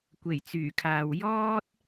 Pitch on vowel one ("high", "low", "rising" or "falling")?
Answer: low